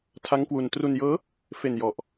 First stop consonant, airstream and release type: aspirated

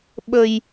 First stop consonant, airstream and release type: implosive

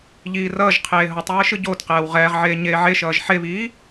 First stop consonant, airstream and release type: aspirated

